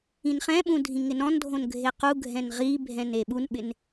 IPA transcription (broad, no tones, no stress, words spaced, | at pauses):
ĩnχɛ̃ɓũ dʱĩŋɪnɔ̃ndʱõn ɡʱequɡʱɛ̃n ʁibʱɛ̃n eɓunɓɪn